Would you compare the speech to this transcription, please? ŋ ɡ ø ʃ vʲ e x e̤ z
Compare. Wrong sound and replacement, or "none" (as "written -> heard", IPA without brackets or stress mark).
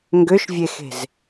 none